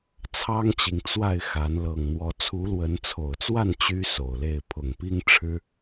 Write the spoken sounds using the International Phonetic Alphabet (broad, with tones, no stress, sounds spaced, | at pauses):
t͡sʰ ɑ˦ ŋ t͡ɕ i˨ ŋ t͡s w a˥˨ ɪ̯ x a˨˦ n l ɤ˨˩ ŋ n̪ w ɔ˨˦ t͡sʰ u˨˦ l w ə˨˦ n t͡sʰ o˨˩ ʊ̯ t͡s w a˥˨ n t͡ɕ y˦ s o˨˩ ʊ̯ l e˥˨ ɪ̯ pʰ ʊ˨˩ ŋ p i˦ ŋ ʈ͡ʂʰ ɻ̩˦